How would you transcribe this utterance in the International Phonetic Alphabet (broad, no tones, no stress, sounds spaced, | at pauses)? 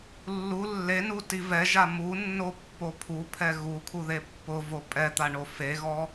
lː u lː e n u t i v ɛ ʒ a m u nː o pː o pʰ u pʰ ɛ ɣ u kʰ u ð e pː ʊ v o pʼ ɛ t̪ a ɳ o f e ɣ ɔ